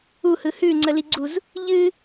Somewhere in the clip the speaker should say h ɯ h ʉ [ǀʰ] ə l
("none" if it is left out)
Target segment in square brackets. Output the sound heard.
ŋ͡ǀ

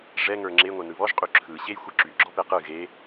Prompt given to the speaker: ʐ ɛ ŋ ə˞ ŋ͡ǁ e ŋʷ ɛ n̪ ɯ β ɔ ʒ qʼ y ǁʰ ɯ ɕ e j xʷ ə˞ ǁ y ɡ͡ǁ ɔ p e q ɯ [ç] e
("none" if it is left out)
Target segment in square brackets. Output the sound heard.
ɣ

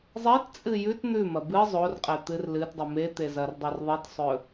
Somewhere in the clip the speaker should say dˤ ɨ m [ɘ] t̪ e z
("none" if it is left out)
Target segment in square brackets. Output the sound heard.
e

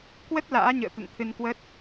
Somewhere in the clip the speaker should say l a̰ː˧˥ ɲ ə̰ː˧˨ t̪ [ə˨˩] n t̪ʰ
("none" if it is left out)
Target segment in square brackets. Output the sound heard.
ə̰˧˨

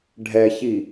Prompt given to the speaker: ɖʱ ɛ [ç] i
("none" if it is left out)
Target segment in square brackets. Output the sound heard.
ç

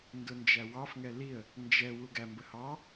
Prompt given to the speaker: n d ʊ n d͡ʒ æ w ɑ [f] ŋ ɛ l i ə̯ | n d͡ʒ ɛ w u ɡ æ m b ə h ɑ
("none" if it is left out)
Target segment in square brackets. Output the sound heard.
f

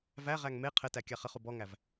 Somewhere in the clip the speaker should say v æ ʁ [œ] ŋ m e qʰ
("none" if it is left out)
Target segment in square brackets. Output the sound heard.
æ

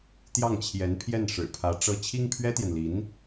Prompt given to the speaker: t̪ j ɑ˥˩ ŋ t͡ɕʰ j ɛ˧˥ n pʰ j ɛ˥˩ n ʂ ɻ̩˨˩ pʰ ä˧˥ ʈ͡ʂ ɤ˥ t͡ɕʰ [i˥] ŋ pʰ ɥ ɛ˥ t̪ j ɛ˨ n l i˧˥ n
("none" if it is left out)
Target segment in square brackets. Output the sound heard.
i˥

